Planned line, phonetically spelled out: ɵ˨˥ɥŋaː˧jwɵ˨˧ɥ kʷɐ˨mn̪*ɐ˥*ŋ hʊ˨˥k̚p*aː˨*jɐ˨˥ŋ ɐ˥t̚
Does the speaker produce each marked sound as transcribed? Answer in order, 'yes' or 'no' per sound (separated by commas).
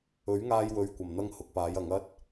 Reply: yes, no